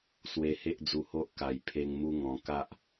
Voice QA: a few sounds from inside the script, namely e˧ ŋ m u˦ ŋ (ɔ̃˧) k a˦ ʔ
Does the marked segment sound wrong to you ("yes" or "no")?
no